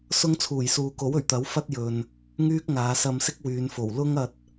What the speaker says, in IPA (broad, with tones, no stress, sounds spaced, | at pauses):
s ʊ˥ ŋ t͡sʰ uː˨˩ j s uː˨˧ k o˨˥ w ɵ˨˩ ɥ t̪ ɐ˨˥ w f ɐ˥ t̚ j ɵ˨ n | ŋ yː˥ k̚ ŋ aː˨˧ s ɐ˧ m s ɪ˥ k̚ w yː˨˧ n f o˨˩ w l ʊ˥ ŋ ɐ˧ t̚